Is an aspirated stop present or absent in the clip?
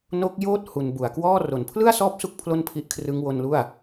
present